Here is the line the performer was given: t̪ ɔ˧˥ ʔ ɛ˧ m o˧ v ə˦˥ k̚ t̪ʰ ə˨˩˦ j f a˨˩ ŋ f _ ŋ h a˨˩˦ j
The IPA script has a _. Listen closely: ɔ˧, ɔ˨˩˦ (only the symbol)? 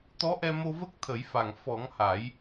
ɔ˨˩˦